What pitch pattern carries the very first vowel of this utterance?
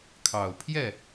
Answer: low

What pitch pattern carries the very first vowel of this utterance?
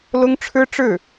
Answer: high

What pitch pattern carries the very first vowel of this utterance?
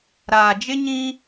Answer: low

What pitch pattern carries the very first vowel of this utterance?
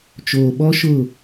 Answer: low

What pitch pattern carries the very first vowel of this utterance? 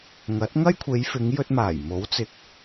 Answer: rising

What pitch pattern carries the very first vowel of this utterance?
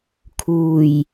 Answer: low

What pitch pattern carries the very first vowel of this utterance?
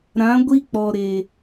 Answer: rising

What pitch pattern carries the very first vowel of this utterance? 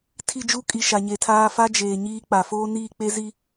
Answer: falling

